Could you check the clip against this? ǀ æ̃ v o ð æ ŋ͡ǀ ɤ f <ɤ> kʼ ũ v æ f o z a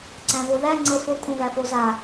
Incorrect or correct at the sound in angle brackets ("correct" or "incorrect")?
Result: incorrect